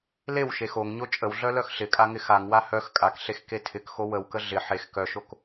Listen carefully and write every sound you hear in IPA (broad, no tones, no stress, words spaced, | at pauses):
lewʃe xoŋɲo t͡ʃʼəwɮœ lœxɬɪkʼa ŋɪxaŋwa hœx kʼakɬex ketʰɪkxo wəwkə ɮɪ ħex kœʃok